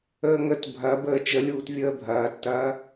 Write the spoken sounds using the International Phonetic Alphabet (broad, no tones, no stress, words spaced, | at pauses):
əːŋət bʱɐ bəːt͡ʃəlʲuːt vʲəːbʱɐːtːɐː